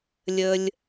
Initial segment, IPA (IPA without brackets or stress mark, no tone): lʲ